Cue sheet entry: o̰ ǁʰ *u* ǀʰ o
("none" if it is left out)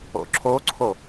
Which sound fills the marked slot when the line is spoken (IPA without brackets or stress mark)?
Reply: o